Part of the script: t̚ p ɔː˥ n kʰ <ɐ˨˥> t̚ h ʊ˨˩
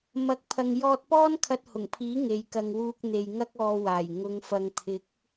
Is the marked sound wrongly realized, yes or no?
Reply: yes